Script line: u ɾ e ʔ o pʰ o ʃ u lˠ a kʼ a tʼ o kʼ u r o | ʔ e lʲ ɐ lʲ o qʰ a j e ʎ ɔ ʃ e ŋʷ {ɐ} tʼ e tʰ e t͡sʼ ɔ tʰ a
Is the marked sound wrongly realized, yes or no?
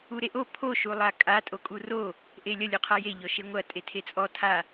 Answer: no